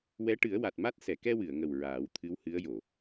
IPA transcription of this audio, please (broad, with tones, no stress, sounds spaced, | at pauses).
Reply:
w ɛ˧˥ ʈ ɨ˨˩˦ ə̯ w a˨˩ t̚ m a˦˥ t̚ s ɛ˨˩˨ k ɛ˧ w ɨ˨˩˨ ə̯ ŋ ə˨˩ w ɹ aː˨˩˦ w t̪ʰ ɨ˧˥ w h ɨ˧˥ ə̯ j o˨˩˨